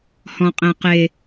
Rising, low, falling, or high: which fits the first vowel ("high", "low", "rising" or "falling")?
low